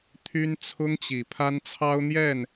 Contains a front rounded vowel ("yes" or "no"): yes